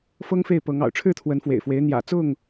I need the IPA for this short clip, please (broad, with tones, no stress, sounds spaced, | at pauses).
f ɤ˦ ŋ f e˥˨ ɪ̯ p ɤ˨˦ ŋ ɑ̰˨˩ ʊ̯ ʈ͡ʂʰ ɻ̩˥˨ t̪ʰ w ə˨˦ n f w ḛ˨˩ ɪ̯ f w e˨˦ ɪ̯ n̪ j ä̰˨˩ t͡s ʊ˥˨ ŋ